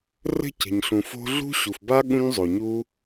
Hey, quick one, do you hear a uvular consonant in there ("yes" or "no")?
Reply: no